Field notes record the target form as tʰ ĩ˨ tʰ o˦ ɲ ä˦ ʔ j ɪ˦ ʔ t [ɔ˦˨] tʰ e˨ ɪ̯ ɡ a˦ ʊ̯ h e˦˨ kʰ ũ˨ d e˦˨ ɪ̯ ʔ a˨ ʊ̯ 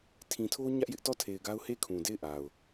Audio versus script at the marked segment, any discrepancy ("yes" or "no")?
no